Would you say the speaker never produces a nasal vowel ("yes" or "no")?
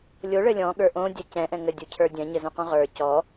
no